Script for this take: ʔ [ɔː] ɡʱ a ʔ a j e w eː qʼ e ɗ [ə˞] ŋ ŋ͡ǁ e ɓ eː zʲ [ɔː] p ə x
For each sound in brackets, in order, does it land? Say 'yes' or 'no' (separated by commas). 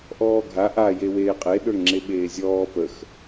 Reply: yes, yes, yes